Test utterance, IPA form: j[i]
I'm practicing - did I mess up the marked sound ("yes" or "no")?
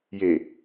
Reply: yes